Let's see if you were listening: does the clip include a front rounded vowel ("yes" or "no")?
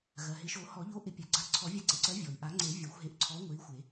no